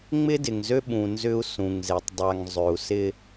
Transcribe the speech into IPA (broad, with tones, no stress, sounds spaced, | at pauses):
ŋ͡m ɪ˦ d ɪ˨ ŋ z ø˦ ɓ ũ˨ n z ʏ˦ u̯ s ũ˨ ŋ z e˨ tˤ dˤ a˨ ŋ zˤ ø˨ u̯ s ɪ˦